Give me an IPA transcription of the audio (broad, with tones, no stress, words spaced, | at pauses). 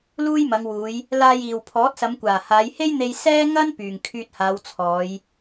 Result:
luː˥jmɐ˨˧ŋwuː˨˧j | laː˧jiː˨w pʰɔː˨˥t̚sɐ˨˧mkʷaː˨˩ haː˨˧jhe˥jn̪e˧j sɛː˥ŋɐ˥n pyː˨ŋkʰyː˧t̚haː˨˧w t͡sʰɔː˨˧j